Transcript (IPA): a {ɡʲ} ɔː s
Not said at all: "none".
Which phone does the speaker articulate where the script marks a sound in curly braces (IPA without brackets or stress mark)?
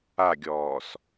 ɡʲ